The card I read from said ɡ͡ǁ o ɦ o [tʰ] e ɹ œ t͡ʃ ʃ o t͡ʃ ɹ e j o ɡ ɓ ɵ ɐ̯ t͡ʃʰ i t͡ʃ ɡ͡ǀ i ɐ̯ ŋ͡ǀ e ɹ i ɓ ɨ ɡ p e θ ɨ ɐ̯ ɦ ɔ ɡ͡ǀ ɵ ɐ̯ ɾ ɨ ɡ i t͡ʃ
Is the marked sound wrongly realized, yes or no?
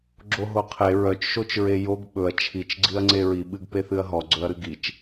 yes